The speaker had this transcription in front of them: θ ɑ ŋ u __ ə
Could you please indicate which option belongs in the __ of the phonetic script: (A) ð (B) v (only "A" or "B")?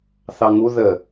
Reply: A